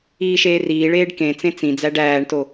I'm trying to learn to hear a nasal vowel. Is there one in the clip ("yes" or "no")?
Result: yes